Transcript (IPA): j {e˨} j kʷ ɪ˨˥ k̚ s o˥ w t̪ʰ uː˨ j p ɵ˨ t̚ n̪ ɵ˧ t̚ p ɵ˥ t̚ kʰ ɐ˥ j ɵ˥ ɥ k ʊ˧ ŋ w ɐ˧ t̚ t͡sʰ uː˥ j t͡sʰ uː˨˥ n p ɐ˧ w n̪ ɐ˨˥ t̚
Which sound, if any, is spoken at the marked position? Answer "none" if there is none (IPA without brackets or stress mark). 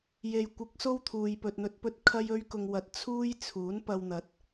e˨